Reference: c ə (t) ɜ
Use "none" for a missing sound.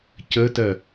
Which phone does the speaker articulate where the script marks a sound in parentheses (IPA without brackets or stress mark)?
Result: t